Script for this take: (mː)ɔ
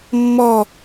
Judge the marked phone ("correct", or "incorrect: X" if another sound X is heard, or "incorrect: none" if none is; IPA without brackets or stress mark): correct